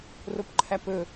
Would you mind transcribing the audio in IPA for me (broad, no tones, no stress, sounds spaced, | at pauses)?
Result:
r o p ǃʰ æ p ɵ